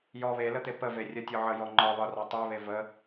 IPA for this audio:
jɔ βelət̪e pəve rʲətʲɔʕəjɔ ŋ͡ǃɒβɒrɒ tˤeβe və

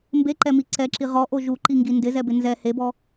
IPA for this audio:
mbeǃɛmi ǀɛǁi ʁɔʔo ʒuǃiŋɡi ndɪzɛbɪ nzɛ hebɔ

